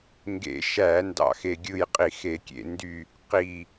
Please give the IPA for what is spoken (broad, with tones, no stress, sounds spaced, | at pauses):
ŋ ɡ ḛ˧˩˧ ʃ æ˧˩˧ n d ɑ̰˦˨ x e˦˨ ɡʲ ɯ˦˨ j qʼ i˧˩˧ x e˧˩˧ kʲ ḛ˧˩˧ n d y˦˨ | q i˦˨